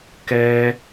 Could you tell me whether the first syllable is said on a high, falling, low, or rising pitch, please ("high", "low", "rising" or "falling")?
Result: high